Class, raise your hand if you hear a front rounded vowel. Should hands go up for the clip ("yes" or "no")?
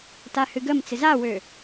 yes